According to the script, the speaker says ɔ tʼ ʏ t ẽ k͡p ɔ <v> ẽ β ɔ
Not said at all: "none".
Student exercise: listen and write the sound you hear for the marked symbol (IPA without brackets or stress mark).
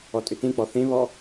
θ